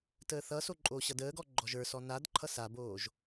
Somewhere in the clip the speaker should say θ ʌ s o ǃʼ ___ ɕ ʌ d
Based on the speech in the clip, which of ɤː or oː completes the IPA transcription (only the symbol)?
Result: oː